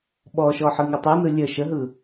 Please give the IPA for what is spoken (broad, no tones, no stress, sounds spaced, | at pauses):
ɓ ɔ ʃ ɔ ħ ɯ ŋ u tˤ u n ɯ lʲ ə ʃ ə ɦ ɯ